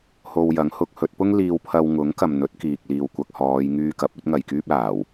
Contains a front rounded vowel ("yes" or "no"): yes